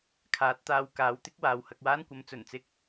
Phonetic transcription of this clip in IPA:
kʰaː˨˥t̚t̪aː˧wkaː˨˥wt̪ɪ˥k̚ waː˨˧whɐ˧k̚waː˥nkʷɐ˨˥m t͡sɵ˨˩nt͡sɪ˥k̚

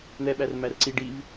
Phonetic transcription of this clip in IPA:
n̪ɛɓærmær ǀi ɖiv

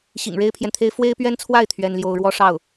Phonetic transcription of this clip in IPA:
ɕḭ˨˩ŋɻe˥ɪ̯pʰjɛ˨nt̪ʰe˥ɪ̯ fwe˥ɪ̯pɥɛ˥nt͡sʰwa˥˩ɪ̯ t̪ʰɥɛ˥nljo˥ʊ̯ ɻwɔ˥ʂɑ˥˩ʊ̯

